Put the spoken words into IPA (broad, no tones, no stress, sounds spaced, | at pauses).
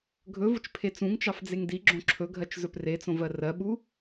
ɡʱ ɵ v ʊ t͡ʃ pʰ e t͡s ũ ŋ t͡ʃ ɑ f d͡z e ŋ d i ɡ͡ǁ õ ǁʰ ɵ ɡʱ ɜ t͡ʃ z ɵ p r e t͡s õ v ɜ r ɜ ɓ u